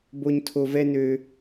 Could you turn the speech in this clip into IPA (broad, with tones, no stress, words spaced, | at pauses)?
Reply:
bo˦ɲ tʰo˦vɛ˥nø˦